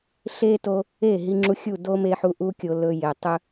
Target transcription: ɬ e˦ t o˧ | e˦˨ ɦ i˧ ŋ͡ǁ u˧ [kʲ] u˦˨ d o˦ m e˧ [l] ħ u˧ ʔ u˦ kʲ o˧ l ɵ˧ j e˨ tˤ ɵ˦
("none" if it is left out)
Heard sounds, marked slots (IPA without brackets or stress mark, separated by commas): xʲ, none